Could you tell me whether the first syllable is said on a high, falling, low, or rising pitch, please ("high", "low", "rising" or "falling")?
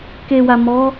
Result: low